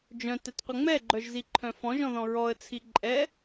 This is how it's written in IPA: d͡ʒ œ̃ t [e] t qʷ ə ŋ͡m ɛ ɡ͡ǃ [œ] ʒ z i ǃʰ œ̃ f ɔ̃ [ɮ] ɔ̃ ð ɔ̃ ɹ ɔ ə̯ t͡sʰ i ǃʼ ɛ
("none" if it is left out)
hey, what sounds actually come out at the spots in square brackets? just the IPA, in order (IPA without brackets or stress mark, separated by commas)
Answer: ɛ, œ, ʒ